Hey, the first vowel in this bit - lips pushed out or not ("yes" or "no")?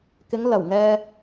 no